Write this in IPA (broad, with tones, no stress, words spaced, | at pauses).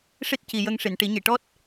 ʂi˦˥t̚ci˨˩jə˧ŋ ʂi˨˩˨nʈi˨˩˦ɲi˨˩˨ʈɔ˦˥t̚